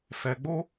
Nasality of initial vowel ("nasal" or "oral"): oral